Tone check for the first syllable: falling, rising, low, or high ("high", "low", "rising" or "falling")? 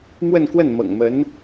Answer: falling